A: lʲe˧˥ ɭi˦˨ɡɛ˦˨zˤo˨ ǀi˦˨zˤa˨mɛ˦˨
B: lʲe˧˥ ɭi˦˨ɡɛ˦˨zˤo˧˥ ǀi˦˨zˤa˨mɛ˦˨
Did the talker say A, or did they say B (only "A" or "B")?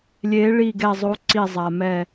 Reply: B